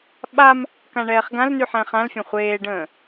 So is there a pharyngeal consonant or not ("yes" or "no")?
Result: yes